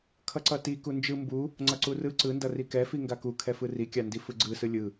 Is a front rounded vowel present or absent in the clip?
absent